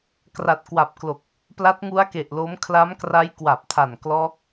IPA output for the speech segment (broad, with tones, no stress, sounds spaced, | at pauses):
k r a˨˩ t̚ k w a˨˩ p̚ k l o˨˩ k̚ | p l a˦˥ t̚ ŋ u˦˥ a̯ k e˨˩ ʔ l o˦˥ m kʰ l a˦˥ m k r a˦˥ j k w a˨˩ p̚ tʰ a˨˩ n k l ɔː˦˥ k̚